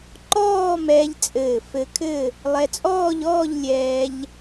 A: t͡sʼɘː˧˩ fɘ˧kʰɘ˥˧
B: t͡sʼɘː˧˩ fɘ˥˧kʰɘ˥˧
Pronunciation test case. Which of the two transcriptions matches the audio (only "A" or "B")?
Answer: A